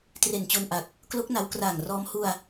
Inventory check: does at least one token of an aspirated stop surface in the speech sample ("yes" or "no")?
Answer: no